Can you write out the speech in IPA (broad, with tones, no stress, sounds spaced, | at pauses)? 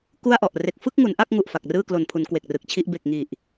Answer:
k u˥˩ a̯ ʔ ɔ˨˩ ʔ r e˨˩ k̚ f ɯ˥˩ k̚ ŋ u˩˦ n ʔ a˥˩ k̚ ŋ u˨˩ ʔ f a˨˩ k̚ r ɯː˥˩ k l o˨˩ n pʰ u˩˦ n k w e˨˩ k̚ r ɯ˨˩ k̚ t͡ɕʰ i˥˩ ʔ b e˨˩ k̚ ŋ i˨˩ ʔ